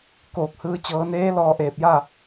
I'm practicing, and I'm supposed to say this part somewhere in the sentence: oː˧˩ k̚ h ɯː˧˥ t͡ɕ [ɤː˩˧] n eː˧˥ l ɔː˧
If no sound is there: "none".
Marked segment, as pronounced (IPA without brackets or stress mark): ɤː˩˧